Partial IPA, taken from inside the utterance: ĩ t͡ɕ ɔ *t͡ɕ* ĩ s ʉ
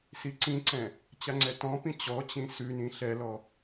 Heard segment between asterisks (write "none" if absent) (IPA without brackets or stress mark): t͡ɕ